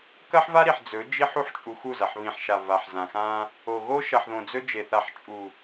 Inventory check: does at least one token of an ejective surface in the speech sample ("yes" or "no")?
yes